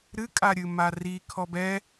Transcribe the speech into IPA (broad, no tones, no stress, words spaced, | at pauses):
ɾɨkʼaɾʲɨ mari kʰɔbɛ